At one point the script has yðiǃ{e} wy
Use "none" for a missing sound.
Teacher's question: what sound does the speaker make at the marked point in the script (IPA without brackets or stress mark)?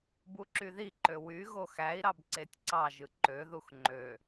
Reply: ø